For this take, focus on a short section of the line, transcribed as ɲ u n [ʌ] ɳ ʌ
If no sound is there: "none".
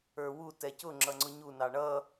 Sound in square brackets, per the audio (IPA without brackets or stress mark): ɑ